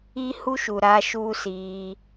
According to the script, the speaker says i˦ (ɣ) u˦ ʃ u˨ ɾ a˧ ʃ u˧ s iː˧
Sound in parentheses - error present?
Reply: yes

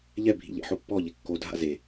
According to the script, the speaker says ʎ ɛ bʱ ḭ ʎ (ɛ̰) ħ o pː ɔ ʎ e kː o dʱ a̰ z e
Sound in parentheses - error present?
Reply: no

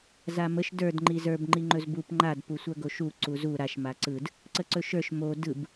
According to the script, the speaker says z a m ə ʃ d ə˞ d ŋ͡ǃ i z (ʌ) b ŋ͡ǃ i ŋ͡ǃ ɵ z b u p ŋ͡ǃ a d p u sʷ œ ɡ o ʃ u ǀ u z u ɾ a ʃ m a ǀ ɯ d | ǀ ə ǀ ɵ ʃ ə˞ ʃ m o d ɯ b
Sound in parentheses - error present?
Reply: yes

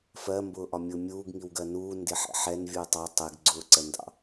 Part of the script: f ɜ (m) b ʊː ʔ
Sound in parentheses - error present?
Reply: no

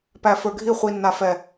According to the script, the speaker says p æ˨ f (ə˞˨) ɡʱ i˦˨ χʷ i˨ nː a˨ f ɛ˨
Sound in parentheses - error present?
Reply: no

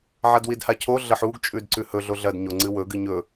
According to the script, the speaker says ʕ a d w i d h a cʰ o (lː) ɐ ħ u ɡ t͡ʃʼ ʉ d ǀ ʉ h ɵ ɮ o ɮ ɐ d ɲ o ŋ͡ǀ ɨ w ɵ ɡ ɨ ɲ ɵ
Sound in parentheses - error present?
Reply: yes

